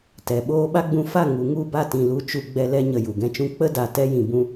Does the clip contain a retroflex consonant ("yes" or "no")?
no